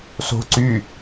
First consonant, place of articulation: alveolar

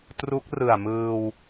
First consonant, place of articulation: alveolar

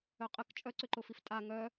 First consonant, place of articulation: uvular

